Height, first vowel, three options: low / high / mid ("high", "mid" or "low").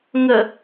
mid